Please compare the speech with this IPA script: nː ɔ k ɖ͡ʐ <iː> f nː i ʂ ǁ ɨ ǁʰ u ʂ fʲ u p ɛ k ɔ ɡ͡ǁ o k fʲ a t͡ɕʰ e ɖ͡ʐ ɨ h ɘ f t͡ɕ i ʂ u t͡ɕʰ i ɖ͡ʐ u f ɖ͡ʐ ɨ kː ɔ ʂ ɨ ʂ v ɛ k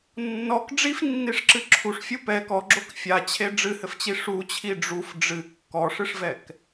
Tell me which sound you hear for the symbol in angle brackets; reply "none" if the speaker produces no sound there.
i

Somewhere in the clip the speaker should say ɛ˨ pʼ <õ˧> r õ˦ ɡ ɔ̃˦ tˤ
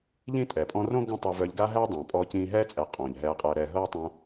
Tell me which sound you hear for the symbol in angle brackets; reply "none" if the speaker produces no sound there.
ɔ̃˧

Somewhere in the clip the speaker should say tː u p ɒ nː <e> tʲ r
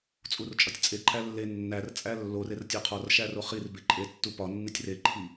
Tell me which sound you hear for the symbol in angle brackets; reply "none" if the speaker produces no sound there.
i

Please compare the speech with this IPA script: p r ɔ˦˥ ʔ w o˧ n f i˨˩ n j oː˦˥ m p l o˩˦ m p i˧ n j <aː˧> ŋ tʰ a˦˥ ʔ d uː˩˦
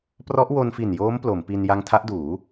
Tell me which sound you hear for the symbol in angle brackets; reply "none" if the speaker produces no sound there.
a˧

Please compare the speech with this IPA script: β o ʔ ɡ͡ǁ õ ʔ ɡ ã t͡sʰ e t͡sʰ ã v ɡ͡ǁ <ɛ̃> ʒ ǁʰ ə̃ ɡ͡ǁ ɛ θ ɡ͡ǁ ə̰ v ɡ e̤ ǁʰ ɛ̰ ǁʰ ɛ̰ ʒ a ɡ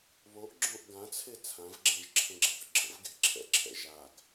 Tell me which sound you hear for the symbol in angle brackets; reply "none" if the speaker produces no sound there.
ɛ̃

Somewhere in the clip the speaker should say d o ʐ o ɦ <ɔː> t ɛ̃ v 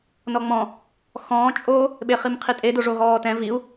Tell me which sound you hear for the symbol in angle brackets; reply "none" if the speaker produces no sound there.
ɔː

